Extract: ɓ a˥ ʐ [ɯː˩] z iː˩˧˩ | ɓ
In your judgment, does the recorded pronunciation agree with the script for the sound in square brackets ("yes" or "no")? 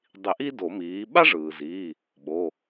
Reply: yes